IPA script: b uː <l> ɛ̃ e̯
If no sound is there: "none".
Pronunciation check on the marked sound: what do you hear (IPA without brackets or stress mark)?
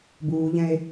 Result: ʎ